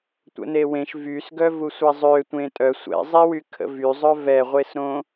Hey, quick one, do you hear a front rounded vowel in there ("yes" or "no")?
yes